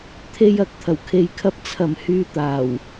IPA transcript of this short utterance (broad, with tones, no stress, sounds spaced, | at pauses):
t̪ʰ e˧ j ɐ˨˥ k̚ t̪ʰ ɐ˨˩ w kʰ e˨ j kʰ ɐ˧ p̚ t͡sʰ ɐ˨˩ m h yː˨ t̪ aː˨˩ w